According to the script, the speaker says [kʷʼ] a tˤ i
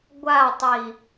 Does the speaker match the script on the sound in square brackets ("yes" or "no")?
no